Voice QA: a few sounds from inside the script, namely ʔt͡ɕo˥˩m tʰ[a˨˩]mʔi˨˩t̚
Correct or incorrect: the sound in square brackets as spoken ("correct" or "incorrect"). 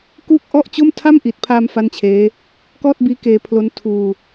incorrect